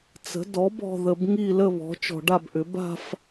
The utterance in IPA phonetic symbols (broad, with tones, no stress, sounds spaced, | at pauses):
t͡s ə̤˩˥ d ɔ˩˥ b ɔ̤˨ ð ə˨ b ŋ i˥˧ l ə˥˧ β ɔ̤˩˥ t͡ʃ ɔ̤˨ ɖ a˥˧ b ʔ ʏ˩˥ b a̤˥˧ f